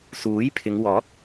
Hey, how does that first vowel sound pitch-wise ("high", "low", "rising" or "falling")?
rising